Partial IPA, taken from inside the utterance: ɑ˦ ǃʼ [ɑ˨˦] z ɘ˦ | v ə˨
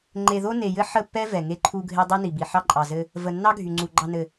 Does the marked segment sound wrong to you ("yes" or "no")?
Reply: yes